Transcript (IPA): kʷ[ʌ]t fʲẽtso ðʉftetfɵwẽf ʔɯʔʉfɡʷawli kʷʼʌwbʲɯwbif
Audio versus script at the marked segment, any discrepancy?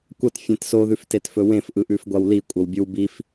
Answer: no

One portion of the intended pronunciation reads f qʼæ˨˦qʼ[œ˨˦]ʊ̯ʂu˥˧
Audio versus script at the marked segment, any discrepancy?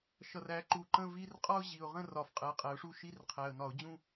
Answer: yes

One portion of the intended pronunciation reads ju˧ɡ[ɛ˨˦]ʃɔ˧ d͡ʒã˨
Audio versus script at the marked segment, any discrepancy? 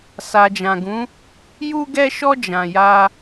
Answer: yes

